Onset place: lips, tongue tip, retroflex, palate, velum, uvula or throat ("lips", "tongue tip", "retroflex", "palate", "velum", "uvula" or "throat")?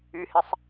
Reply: throat